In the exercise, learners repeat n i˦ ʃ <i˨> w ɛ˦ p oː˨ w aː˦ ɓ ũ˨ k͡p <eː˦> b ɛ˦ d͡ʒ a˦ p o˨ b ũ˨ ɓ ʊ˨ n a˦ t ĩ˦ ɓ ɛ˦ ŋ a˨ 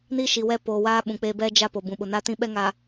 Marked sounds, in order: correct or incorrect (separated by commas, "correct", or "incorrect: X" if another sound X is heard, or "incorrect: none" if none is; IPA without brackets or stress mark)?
correct, correct